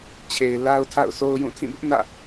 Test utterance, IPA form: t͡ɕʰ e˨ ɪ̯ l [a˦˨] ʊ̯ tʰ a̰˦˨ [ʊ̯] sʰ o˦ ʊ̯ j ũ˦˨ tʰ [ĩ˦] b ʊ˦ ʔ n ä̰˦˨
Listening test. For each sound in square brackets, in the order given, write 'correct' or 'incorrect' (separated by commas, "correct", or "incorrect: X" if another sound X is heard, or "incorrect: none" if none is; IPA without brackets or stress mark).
incorrect: a˦, correct, incorrect: ĩ˦˨